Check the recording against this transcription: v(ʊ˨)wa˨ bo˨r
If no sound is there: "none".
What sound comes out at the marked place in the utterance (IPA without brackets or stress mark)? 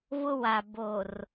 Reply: ʊ˦